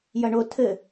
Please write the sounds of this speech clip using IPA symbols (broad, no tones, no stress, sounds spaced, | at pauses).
j ɐ ɳ o tʰ ɘ